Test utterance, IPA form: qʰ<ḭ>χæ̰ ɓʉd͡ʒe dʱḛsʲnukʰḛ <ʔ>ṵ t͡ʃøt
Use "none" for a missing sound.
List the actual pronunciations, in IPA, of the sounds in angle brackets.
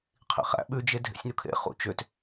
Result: ḭ, χ

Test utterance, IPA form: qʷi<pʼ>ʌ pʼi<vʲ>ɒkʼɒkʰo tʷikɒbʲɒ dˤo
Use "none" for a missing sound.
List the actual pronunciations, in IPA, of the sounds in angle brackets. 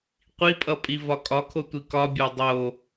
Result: pʼ, v

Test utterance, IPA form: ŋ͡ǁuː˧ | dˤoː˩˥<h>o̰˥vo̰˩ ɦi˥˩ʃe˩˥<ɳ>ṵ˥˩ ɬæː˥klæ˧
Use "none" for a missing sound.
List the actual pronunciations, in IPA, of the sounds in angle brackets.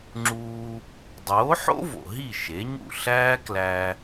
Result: ħ, ɲ

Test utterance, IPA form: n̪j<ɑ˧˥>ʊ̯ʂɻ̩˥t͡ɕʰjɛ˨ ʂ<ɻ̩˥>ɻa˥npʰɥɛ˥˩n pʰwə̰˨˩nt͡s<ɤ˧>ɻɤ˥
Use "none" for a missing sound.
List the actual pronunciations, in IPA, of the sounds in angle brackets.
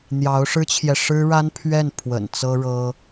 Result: ɑ˧˥, ɻ̩˥, ɤ˥

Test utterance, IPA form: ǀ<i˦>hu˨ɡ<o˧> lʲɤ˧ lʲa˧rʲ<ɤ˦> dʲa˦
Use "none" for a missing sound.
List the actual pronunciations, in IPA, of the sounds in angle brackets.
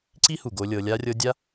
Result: i˦, o˧, ɤ˧

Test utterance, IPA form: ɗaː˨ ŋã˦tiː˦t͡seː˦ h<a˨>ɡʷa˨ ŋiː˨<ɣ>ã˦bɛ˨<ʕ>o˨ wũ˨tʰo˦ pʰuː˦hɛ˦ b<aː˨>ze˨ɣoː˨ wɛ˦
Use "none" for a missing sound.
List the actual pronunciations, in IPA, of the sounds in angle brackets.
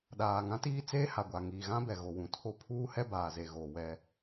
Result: a˨, ɣ, ɣ, aː˨

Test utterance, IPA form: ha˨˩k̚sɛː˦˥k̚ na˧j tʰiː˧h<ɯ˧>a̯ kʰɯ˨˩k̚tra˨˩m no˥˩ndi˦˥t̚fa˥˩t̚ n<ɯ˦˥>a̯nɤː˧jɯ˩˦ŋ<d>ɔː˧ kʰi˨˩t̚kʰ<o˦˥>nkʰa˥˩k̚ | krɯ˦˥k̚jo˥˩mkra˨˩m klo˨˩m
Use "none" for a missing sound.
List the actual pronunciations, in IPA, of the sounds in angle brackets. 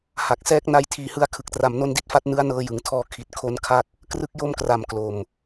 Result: ɯ˥˩, ɯ˦˥, tʰ, o˦˥

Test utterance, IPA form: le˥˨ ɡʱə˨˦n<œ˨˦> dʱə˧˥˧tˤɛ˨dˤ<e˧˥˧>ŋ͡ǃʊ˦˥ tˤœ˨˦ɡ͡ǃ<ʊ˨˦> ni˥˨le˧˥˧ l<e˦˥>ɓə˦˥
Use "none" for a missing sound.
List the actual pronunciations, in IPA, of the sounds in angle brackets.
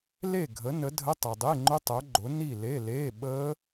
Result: ə˨˦, e˧˥˧, ʊ˨˦, e˧˥˧

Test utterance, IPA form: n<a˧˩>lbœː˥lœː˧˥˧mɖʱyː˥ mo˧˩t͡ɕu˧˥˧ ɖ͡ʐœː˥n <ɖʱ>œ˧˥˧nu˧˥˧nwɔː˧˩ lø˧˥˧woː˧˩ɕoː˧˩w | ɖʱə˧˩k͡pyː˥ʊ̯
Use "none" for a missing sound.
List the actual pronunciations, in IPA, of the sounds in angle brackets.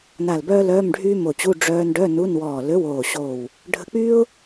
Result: a˧˩, ɖ

